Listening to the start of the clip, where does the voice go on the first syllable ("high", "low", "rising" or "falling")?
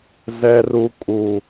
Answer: low